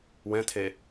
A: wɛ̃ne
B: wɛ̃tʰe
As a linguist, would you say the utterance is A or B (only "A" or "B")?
B